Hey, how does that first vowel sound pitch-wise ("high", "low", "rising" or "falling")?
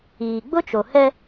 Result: low